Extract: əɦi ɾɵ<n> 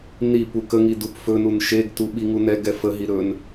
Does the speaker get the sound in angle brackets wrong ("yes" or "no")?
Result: no